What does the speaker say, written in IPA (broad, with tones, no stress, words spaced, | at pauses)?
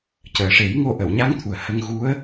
cəː˨˩ʂe˨˩˦jŋo˧ ʔə˨˩˨wɲa˧˥ŋt̪ʰu˨˩ə̯ hə˧ŋɣu˧˥ə̯